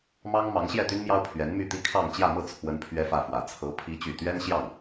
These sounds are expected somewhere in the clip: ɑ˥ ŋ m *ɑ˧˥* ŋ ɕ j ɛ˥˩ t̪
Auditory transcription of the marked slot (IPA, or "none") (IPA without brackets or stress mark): ɑ˧˥